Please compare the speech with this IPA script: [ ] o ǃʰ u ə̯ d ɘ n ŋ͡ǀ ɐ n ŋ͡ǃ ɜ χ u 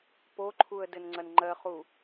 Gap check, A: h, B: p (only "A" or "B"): B